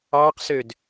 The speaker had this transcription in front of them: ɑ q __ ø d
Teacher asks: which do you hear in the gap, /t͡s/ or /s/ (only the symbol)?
s